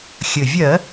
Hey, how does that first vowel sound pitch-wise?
low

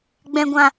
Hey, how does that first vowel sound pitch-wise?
low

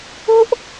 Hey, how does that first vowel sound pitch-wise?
high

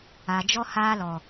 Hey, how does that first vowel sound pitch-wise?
low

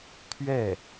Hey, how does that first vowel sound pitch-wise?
falling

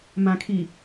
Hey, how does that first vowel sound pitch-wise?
low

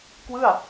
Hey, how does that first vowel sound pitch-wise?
falling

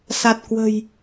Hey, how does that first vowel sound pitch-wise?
low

